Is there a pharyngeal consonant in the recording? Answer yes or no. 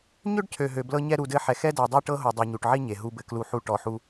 yes